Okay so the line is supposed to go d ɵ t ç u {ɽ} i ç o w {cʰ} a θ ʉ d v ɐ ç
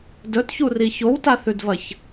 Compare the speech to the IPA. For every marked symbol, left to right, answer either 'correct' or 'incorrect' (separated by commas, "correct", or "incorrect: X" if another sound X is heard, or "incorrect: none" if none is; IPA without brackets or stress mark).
incorrect: r, incorrect: t